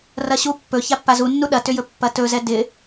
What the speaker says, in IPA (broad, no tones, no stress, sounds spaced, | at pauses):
r ɐ ɕ u pː ɵ ç a pː a z u nː u ɗ ɐ t ʏ j ɵ pː ɐ t ɵ z ɛ d ɪ